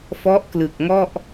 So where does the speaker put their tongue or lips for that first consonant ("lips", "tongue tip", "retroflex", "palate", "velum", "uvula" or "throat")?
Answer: lips